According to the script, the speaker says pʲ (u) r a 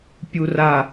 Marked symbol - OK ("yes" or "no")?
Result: yes